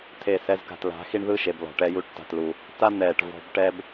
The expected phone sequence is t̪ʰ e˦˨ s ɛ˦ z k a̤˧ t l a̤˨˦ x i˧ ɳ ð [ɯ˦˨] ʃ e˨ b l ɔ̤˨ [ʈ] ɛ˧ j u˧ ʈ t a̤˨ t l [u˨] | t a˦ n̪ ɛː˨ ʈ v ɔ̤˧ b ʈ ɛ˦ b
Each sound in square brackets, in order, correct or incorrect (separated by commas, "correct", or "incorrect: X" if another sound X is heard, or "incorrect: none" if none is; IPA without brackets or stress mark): correct, correct, correct